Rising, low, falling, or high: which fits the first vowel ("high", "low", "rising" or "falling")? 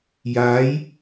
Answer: rising